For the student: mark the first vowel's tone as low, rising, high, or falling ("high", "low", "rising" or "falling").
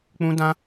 high